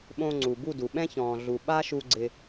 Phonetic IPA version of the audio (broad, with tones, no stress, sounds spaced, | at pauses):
ɓ õ˧ ŋ͡ǀ u˨ b u˦˨ d u˨ ɓ ɛ̃˦ ç ɔ̃ː˨ ɮ u˨ ɓ a˦ ʃ u˧ ɡ͡ǀ ɪ˧